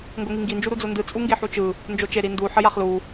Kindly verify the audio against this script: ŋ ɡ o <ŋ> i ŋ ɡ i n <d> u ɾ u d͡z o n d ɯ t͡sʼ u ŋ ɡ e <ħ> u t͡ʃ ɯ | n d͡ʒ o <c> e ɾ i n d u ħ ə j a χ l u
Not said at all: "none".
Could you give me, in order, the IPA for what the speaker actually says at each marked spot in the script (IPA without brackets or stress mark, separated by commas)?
ŋ, d͡ʒ, ħ, t͡ʃ